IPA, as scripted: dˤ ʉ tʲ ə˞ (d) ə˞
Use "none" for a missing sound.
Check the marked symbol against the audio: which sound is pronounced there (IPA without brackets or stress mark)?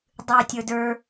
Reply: d